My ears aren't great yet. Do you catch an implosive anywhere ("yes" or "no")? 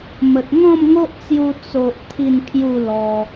no